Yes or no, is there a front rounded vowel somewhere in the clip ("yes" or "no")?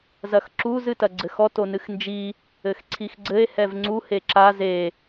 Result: no